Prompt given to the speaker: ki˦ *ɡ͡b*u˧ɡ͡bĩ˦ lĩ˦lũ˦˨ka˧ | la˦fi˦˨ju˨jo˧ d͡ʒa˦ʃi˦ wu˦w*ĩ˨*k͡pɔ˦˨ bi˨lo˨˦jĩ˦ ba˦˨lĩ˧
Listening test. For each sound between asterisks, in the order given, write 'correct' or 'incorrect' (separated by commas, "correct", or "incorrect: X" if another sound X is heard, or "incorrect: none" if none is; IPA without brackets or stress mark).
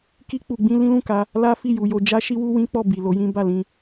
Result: incorrect: k͡p, incorrect: ĩ˦